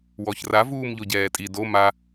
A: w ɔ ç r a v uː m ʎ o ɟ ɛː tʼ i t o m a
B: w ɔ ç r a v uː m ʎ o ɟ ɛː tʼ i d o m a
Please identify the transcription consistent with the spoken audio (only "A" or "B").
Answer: B